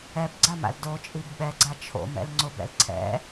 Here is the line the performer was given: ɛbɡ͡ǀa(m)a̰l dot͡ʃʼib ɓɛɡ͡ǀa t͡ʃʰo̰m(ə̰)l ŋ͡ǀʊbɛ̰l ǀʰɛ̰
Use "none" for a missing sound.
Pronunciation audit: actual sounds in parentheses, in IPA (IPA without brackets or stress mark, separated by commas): m, ɛ̰